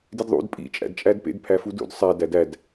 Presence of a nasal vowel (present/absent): absent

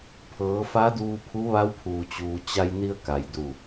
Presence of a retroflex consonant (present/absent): absent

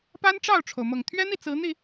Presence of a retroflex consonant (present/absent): present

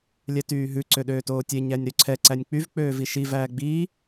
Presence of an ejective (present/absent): absent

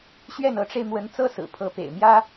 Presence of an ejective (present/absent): absent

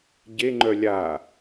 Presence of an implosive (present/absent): absent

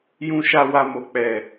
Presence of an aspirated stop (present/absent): absent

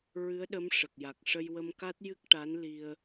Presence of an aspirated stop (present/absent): absent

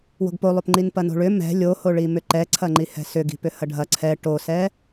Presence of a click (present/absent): present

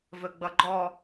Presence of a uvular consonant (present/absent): absent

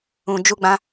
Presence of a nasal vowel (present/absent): present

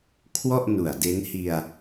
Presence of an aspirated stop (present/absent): present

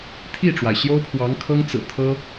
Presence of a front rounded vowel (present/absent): absent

